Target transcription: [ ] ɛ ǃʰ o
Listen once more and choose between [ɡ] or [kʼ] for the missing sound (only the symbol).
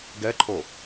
ɡ